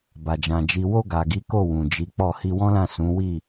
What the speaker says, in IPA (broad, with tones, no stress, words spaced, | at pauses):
ba˨d͡ʒã˨ d͡ʒi˨wo˧ ɡa˨ɡi˨˦ko˦˨ wũ˨d͡ʒi˨˦k͡pɔ˦˨ hi˧wɔ̃˦lã˦˨ sũ˨˦wi˦˨